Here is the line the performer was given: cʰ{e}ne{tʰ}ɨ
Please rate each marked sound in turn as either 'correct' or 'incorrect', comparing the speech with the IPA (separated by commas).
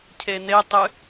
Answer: correct, incorrect